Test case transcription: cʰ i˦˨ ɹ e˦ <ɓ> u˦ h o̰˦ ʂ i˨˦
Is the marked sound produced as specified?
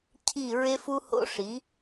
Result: no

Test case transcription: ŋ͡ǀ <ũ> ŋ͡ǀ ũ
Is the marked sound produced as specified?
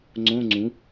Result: no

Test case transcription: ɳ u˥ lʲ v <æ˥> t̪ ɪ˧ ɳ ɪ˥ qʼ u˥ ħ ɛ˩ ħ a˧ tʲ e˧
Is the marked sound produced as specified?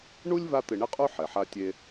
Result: no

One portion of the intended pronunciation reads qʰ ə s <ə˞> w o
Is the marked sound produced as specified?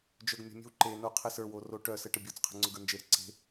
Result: yes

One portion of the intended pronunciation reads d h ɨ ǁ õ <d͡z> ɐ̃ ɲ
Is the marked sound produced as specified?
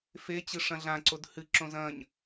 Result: no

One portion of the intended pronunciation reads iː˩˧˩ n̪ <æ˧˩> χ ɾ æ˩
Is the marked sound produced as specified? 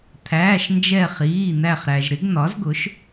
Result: yes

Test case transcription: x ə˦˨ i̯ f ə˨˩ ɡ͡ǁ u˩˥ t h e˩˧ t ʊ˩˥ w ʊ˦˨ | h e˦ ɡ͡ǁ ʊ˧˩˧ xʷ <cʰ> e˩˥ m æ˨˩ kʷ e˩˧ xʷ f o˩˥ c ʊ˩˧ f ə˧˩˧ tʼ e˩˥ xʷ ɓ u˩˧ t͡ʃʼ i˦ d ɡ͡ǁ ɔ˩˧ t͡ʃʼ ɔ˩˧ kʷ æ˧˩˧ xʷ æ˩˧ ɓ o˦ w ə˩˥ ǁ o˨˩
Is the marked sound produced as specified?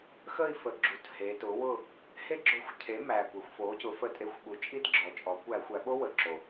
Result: yes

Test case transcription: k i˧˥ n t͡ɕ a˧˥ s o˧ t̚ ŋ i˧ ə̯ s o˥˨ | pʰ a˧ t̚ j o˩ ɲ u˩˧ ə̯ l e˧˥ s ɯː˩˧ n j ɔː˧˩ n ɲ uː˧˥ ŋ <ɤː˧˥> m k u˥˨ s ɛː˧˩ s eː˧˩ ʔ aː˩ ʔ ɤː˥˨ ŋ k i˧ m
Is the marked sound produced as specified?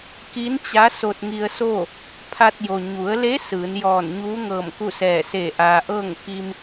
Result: no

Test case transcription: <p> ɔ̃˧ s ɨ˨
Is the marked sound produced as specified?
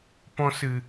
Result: yes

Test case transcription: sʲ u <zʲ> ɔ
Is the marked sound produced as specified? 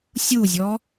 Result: yes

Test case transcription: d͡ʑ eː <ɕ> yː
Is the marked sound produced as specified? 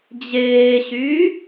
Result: yes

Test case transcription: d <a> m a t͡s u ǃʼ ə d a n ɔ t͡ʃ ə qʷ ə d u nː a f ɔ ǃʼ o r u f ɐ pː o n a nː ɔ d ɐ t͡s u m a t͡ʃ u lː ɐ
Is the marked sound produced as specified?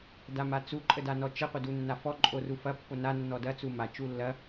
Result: yes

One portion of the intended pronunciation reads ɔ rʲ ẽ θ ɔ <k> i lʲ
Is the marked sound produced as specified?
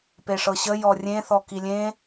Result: yes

